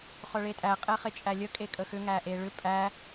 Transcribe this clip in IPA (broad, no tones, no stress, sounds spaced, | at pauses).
χ œ ɭ e tʼ æ qʼ ɛ χ e t͡ʃʼ æ lʲ ə kʼ e kʼ ə x ʏ ŋ æ ʔ e ɭ ʏ pʼ æ